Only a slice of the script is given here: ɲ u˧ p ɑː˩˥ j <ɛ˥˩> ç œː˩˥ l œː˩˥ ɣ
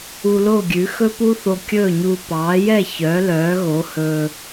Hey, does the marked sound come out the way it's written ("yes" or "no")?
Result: yes